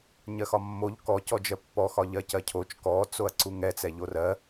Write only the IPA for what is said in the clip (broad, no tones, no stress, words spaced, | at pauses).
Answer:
ɲɜxɒmːoʎ kɔcɔd͡ʒɜ pːɔxɒ ʎɜcɜcʰot͡ʃ kɔt͡soɐ̯ ǀuŋɛt͡sɛ ʎorɜ